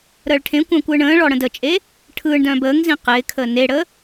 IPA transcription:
ɾəːɭʈʰẽkʷœ̃ːkʷ ɯːɳə̃ːɭɔ ɽə̃dət͡ʃʼe | ʈʰɯːɳdœ̃ːb əːŋzĩ qɪːkʰəː neɽəː

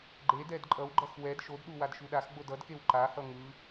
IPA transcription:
ɡ͡ǃedɛd ǃʼʌwɡ͡ǃʌx wɛd ʃodɗu wadʃuɗaxɡ͡bod ʌdkew ǃahʌ ŋɯ

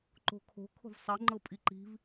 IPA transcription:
ǃo̤kʰo̤ kʰo̤vsˤɤ ŋ͡ǃɤpʼiǃi̤v

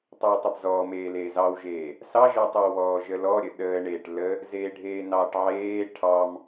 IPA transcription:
tˤʏːtˤəbzɔːmeː leːzɑwʒeː | sɑʒəːtˤewβɔː ʒəlɔɾʲə ɗəːɳeːʈ lə | zeːɖʱeːnɑːʈʕeː ʈʰɑm

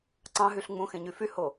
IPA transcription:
ǀɑ̃ɦyɬ ŋ͡mũxẽɲy fyho

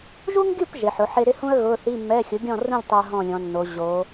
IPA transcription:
ʒu˥ŋɡʲu˥˨p ʒe˩˧ħʊ˩˥ħe˥ ɾɪ˥hũ˥ə̯ ɣʊ˧˥˧ θi˧˥˧mːɛ˧˥˧ xʲʊ˩˥ɡʲɔ̃˥˨rũ˥˨lʲ tˤɛ˥ə̯ɦɔ̃˥˨lʲɔ̃˩˧nːo˩˧ ʑo˩˧

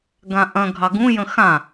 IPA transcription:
ɡãʔɐ̃ ɡʱɑɡũ jə̃xã

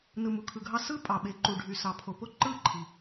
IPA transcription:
nɯ˨mu˨kʰɯ˨ɡʱɑ˦ sɯ˦ pʼɑ˨ɓe˨˦ǃu˨ ɖʱy˨sɑ˨pʰo˨ po˦ǃɯ˦˨ǃʰi˨

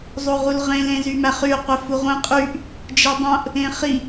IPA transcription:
zˤoʁulʁẽl ẽzymæχy qʷefuʁʷĩ qʼyʔ | d͡ʒidˤõʔ | ẽχi

